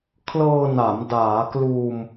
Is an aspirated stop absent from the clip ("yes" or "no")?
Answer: no